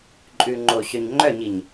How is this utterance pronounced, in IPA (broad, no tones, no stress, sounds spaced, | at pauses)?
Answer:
ǃʼ ʉ ŋ͡ǃ o ɕ œ ɲ ŋ͡ǃ œ ɲ i ɲ